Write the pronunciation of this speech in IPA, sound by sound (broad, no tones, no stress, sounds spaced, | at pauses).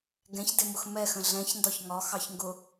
ɡ ɛ̃ ç d ɪ m ʊ x m ɛ x ə̃ ɮ ɛ̃ ç n d ɒ ç ŋ ɒ x ɑ ç ŋ ɡ ʊ